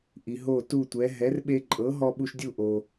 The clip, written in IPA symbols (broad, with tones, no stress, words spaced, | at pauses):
ʔi˩ ɦo˥˩tu˥˩tʷɛ˩˥ ɦɛ˩˥rɓe˧ǃʼɤ˩˥ɦɔ˧ ɓu˧ʃdʲu˥˩ʔo˩